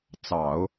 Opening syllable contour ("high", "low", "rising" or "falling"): low